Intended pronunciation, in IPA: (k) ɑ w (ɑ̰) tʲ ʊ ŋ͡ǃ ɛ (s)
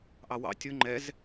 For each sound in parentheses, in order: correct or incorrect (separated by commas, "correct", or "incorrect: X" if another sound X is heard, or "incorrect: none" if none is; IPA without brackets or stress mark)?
incorrect: ʔ, correct, incorrect: z